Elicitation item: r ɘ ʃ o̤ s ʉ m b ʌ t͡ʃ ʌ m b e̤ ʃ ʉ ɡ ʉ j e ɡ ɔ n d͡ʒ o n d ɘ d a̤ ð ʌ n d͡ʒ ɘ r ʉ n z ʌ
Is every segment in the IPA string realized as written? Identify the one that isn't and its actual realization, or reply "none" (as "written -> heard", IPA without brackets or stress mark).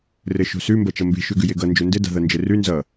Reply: ɔ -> ʌ